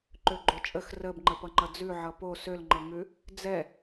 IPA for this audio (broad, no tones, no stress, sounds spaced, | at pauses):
ǃ ø ɡ͡ǃ o t͡ʃʼ ə x r ə b ŋ͡ǃ ə p ʌ ŋ͡ǃ ʌ d͡z ʉ ʕ ʌ p o s ø l ŋ͡ǃ ɤ ŋ ʉ | d͡z ɛ